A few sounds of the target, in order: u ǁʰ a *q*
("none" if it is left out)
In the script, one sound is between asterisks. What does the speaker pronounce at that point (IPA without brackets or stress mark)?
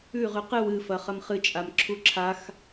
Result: x